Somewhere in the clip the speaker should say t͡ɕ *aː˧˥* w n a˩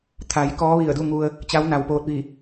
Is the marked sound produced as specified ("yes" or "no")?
no